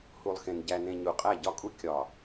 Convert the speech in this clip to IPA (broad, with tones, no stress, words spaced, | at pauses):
hu˨lˠxẽ˨n ɟæ˨nẽ˨ ɲu˨qʼæ˦˨ɟɒ˦kʼu˦ kʲɒ˨